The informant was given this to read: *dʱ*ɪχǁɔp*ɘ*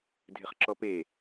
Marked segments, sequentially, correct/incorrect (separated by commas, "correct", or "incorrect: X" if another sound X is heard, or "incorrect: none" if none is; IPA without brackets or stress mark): correct, incorrect: e